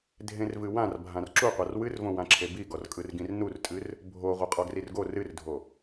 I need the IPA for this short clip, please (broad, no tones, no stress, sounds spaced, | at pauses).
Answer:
dʱ ẽ r v ɨ w ã r bʱ ã r ǁ u qʷ a r w ɨ r v õ w ã ǁʰ e b i ɡ ɔ r kʼ ɯ r ɡ ĩ r n u r tʼ ɨ r | bʱ o ʁʷ ɯ qʼ ɔ ɡ r i r ɡ o r ɨ r dʱ o